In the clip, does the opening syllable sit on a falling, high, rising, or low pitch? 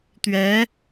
rising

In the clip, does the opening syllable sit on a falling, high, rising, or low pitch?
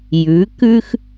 rising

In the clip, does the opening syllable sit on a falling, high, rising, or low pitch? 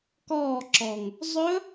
falling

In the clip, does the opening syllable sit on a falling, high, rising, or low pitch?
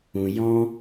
low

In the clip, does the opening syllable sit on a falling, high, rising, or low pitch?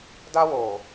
high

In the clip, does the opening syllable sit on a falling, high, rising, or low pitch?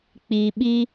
low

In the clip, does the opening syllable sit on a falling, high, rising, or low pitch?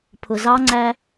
low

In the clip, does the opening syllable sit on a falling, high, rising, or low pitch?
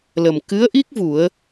low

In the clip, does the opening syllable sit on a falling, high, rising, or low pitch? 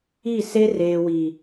falling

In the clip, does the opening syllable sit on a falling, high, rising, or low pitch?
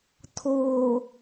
low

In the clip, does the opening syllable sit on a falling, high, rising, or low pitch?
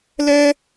high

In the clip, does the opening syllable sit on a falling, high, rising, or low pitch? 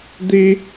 high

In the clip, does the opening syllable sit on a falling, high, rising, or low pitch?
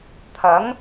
rising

